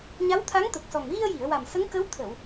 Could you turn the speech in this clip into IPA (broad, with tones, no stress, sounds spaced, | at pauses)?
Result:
ɲ a˧˥ w t̪ʰ a˧˥ ŋ t̪ ə˨˩ k̚ s ɔ˨˩ ŋ ɣ i˧ ə̯ j i˨˩˨ ə̯ w a˨˩ m s ə˧˥ ŋ k ə˧˥ w t̪ʰ ə˨˩˨ w